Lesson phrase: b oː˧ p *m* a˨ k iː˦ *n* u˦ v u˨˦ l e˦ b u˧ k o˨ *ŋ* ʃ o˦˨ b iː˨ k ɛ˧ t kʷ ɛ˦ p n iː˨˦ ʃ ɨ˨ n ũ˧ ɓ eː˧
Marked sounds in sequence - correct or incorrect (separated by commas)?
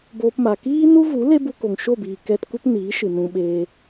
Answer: correct, correct, correct